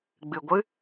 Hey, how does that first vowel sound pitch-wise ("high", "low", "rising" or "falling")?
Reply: low